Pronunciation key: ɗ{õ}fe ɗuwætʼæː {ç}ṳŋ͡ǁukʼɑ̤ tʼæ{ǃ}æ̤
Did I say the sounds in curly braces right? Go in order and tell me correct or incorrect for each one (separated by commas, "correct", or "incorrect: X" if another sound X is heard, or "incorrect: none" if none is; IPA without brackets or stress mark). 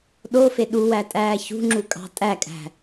incorrect: o, correct, incorrect: kʼ